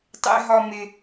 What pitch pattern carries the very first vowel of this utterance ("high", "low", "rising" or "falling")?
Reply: high